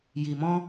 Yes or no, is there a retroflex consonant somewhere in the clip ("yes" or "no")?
no